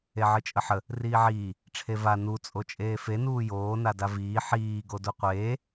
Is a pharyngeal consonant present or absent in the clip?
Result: present